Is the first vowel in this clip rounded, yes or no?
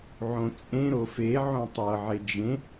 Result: yes